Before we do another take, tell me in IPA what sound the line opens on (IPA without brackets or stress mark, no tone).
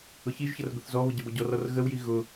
ʊ